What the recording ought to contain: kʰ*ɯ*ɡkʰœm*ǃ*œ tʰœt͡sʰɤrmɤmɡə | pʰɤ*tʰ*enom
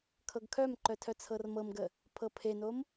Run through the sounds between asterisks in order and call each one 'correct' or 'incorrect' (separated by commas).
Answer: incorrect, correct, incorrect